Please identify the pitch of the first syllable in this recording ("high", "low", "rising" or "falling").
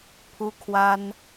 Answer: high